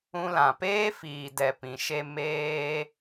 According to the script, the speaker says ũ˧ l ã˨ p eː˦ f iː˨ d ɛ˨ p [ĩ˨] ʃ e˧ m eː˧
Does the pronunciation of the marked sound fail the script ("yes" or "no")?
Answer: no